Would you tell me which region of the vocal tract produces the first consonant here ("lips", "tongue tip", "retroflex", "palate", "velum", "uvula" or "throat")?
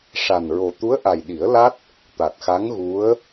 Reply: retroflex